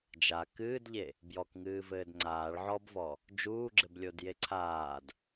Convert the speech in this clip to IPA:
d͡ʒ a k ɨː d ʎ e | b j ɔ k ŋ ɨː v ɘː d ŋ͡ǀ aː ɭ ʕ ɔ b v ɔ | d͡ʒ uː ɡ͡ǁ ɘ b lʲ o d j e ǀʰ aː d

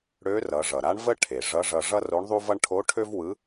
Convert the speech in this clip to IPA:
ɽ ø˧˥ r ʌ˩˧ ʐ ʌ˩ ɾ a˧˥ ɳ v ə˥ ʈʰ e˩ ʐ ʌ˧˥ ʐ ʌ˧ ʐ ʌ˥ r o˧˥ ɳ ðˤ u˥ v ʌ˥ ɳ ʈʰ o˧˥ ʈʰ ø˥ v w ɯ˧˥

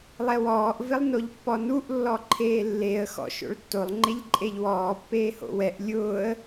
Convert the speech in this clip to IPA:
lˠ ɛ w ɔː ʔ v ɪ lˠ n o ʎ pː ɔ n u ʔ lː ɔ ǃʰ eː lː e ə̯ x ɔ̰ ʃ o̰ ɭ tː o lˠ ŋ͡ǃ e ʎ ǃʼ e ʎ w ɔː pː eː h o̰ w ɛ ʔ lʲ ʊː ə̯

